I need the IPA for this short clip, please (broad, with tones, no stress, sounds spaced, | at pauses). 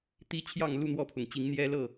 t̪ i˦ t͡ɕʰ j ɑ˥˨ ŋ l u˥˨ n̪ w ɔ˥˨ pʰ ʊ˩ ŋ t͡ɕ i˨˦ ŋ n̪ j ɛ˦ l ɤ˥˨